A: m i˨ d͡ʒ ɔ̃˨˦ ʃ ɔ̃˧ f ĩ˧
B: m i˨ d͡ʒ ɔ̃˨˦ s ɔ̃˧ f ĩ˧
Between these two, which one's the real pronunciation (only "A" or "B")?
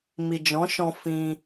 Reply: A